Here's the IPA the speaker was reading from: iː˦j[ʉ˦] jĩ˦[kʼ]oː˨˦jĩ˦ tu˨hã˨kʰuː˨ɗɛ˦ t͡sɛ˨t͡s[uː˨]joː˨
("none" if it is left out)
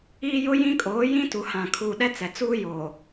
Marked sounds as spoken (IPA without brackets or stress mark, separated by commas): ʊ˦, kʼ, uː˦